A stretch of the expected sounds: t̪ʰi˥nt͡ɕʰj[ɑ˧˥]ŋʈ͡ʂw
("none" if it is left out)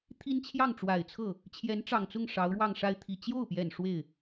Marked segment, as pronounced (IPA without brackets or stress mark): ɑ˥˩